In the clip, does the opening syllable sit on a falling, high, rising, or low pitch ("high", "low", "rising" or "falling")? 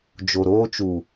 low